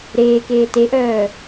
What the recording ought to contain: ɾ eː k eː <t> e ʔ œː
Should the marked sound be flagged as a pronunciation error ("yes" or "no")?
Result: no